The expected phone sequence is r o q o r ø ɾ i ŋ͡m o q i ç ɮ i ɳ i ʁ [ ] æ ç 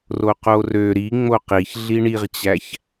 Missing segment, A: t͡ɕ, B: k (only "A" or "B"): A